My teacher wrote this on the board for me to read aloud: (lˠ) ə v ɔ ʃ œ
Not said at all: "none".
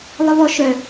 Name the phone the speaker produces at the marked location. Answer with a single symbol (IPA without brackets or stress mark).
lˠ